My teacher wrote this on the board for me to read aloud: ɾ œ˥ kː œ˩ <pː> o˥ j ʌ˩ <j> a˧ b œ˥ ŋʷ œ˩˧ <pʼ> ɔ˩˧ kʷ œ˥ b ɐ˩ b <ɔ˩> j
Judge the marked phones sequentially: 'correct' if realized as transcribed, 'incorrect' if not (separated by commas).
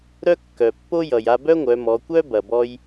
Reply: correct, correct, incorrect, incorrect